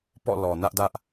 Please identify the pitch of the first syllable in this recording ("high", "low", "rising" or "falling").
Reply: falling